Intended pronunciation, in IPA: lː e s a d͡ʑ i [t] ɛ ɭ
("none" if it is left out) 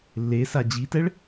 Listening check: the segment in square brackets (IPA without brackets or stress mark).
t